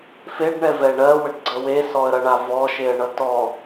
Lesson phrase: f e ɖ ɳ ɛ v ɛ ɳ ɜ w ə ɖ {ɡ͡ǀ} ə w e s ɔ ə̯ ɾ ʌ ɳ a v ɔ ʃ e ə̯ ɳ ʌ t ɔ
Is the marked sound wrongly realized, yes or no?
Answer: no